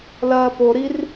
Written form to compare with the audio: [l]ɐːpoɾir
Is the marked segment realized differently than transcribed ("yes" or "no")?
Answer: no